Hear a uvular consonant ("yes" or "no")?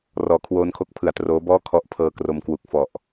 no